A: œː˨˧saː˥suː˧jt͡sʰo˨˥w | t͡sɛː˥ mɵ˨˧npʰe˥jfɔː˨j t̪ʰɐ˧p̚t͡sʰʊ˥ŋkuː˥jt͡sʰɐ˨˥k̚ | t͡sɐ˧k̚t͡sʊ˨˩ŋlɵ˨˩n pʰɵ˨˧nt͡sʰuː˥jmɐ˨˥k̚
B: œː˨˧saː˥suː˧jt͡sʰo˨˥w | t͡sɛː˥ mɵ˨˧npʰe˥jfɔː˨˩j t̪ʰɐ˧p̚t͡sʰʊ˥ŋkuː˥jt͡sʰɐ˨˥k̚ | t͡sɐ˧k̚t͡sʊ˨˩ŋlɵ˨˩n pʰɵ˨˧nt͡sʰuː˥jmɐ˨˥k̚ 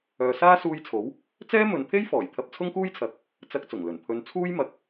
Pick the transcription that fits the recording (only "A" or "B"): B